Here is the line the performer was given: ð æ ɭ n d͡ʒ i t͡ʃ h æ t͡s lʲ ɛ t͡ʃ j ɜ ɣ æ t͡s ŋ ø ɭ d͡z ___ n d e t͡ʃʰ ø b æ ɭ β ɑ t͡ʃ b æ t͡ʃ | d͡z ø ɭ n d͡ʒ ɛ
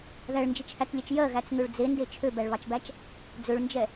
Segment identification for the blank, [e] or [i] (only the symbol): e